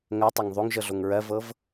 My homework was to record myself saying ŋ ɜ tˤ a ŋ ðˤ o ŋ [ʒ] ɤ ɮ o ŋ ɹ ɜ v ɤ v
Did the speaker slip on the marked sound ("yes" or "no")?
no